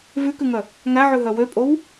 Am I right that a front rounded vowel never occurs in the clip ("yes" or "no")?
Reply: no